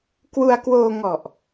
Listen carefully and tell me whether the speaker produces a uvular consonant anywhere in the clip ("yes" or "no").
no